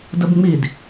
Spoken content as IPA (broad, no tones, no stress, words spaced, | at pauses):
dəbŋ͡mid